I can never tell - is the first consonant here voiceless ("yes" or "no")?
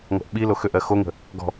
no